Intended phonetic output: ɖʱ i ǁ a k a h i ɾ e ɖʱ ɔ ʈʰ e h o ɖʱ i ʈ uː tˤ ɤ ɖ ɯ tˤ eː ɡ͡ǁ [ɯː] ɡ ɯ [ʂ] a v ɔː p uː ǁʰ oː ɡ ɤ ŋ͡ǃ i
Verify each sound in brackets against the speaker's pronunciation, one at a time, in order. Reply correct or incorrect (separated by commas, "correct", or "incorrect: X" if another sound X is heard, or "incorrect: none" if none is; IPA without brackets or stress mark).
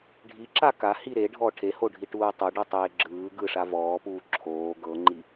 correct, correct